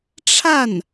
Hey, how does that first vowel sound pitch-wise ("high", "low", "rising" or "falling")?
falling